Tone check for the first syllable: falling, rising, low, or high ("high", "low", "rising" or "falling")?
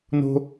high